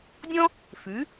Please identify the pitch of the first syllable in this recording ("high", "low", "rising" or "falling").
high